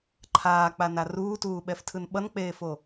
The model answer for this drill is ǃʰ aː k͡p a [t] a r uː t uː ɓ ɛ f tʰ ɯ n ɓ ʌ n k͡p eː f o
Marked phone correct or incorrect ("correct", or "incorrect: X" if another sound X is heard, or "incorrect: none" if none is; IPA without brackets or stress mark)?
incorrect: n